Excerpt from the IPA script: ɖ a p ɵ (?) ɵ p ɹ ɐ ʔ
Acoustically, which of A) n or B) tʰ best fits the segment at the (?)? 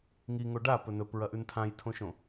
A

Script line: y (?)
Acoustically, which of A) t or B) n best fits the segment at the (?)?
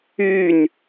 B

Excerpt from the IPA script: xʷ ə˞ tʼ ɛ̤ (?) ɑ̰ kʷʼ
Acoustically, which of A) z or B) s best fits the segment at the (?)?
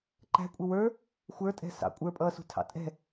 B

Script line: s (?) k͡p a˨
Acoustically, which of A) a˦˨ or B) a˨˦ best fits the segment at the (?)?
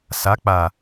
B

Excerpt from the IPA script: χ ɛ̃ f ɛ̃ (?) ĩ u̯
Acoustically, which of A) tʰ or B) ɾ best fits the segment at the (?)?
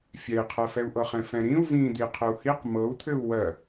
B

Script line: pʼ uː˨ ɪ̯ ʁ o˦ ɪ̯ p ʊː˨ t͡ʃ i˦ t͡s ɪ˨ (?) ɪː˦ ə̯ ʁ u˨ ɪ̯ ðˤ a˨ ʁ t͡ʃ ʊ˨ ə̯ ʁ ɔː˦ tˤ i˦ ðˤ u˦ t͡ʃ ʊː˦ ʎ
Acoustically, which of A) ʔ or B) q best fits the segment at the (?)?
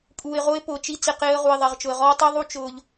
B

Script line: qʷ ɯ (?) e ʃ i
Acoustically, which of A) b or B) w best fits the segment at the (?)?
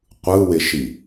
B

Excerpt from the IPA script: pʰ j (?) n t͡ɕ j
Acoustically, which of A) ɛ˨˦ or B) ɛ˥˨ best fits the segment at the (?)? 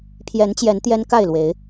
A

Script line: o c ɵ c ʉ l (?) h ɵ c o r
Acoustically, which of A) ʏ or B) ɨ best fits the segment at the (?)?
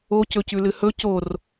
B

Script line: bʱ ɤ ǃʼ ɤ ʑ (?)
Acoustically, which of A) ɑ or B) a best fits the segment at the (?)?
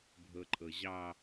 A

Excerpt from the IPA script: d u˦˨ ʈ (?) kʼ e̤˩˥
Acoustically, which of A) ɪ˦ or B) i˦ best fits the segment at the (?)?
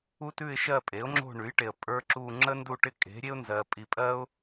A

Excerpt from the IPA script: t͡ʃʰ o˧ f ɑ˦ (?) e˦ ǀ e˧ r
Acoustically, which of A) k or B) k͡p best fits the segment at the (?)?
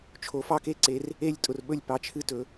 A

